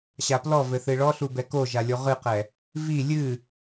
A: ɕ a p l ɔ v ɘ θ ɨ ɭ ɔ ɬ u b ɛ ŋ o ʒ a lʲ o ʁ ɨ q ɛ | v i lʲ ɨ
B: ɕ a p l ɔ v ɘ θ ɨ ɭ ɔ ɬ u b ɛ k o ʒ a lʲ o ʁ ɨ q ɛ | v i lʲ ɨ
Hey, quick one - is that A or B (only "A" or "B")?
B